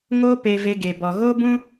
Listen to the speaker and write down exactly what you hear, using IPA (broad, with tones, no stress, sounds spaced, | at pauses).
ŋ o˦ p e˧ v e˧ ɡ e˨ b ɔ˨ ɣ oː˦ b ũ˦